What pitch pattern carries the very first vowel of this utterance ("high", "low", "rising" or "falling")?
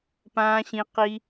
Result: high